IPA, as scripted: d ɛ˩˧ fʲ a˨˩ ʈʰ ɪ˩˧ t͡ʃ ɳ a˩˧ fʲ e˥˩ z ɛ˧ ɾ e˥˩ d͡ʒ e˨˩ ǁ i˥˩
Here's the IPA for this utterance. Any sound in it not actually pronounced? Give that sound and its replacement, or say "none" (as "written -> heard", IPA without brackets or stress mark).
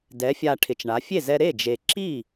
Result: none